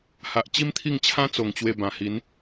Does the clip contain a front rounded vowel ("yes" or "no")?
no